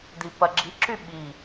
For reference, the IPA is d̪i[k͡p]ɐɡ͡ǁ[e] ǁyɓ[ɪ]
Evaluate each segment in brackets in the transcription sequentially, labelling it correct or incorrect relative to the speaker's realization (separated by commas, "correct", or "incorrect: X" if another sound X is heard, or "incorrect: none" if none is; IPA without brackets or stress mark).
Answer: incorrect: p, incorrect: i, incorrect: i